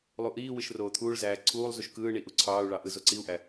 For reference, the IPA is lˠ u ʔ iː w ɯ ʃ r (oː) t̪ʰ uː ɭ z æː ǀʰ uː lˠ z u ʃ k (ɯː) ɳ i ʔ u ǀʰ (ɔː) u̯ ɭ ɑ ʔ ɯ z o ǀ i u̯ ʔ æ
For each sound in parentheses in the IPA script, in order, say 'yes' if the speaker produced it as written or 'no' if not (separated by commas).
yes, yes, no